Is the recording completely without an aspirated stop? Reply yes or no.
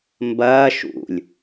yes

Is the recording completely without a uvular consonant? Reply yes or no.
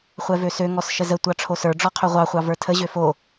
no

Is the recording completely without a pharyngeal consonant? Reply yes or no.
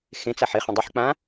no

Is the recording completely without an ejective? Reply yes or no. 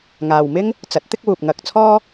yes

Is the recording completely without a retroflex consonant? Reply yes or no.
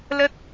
yes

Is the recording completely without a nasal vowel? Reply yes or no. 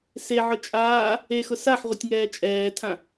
no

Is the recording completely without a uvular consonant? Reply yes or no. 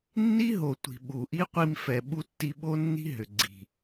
no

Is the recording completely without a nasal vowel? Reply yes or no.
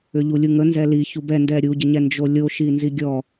yes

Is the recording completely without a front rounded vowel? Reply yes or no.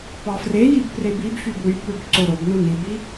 no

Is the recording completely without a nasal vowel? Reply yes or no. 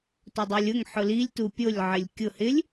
yes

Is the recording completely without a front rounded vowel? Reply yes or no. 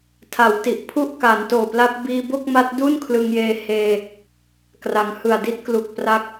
yes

